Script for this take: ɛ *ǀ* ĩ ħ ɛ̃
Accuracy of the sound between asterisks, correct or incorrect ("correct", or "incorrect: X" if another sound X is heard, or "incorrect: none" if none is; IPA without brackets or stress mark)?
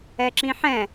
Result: incorrect: ǁ